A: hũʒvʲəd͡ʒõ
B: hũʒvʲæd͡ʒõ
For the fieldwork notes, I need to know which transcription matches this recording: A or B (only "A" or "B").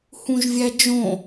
B